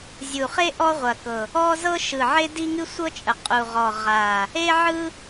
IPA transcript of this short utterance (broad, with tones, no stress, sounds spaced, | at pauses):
zʲ u˨˩ χ e˥ ʔ ɔ˥ ʁʷ ɐ˨˩ k ɤ˨˩ | ɔ˥ z ɤ˥ ʃ ɯ˨˩ ʕ e˥ d i˥ ŋ ɨ˥ sʷ ɤ˥ t͡ʃʼ ə˨˩ qʼ u˨˩ ʁ ɔ˨˩ ʁ a˨˩ | e˥ ʕ ɯ˥